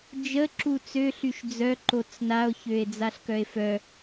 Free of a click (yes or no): no